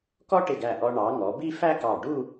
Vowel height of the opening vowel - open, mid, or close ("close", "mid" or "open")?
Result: mid